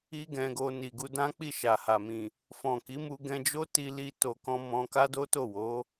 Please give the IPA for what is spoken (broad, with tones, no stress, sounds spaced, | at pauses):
i˦ ɡ ɛ̃˧ ɡ o˧ n i˨ ɡ u˧ d ã˦ k͡p i˦˨ ʃ a˨ h a˨ m ĩ˨ | f ɔ̃˨ k i˨˦ m u˧ ɡ ɛ̃˧ d͡ʒ o˦ t i˧ l i˧ t o˨ k ɔ̃˧ m ɔ̃˧ k a˦ d o˦ t o˦˨ w o˨˦